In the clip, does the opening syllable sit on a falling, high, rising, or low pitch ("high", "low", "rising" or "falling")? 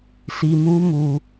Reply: low